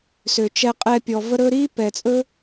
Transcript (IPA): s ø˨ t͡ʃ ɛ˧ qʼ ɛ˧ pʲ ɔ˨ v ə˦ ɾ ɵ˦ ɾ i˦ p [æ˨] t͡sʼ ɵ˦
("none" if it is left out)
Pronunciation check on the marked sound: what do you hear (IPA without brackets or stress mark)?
ɛ˨